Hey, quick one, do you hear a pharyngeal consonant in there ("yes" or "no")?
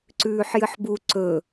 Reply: yes